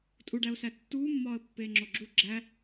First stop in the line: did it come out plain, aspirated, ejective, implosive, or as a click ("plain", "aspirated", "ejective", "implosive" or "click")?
ejective